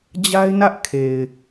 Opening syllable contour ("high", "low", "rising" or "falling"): high